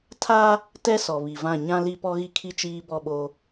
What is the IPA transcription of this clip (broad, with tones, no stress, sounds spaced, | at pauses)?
tʰ a˦ | t ɛ˦ s ɔ˨ β i˨ v ã˦˨ ɲ ã˦ l i˦ p ɔ˦ ɣ i˦ kʰ i˦ t͡ʃ iː˦ b ɔ˦˨ ɓ o˦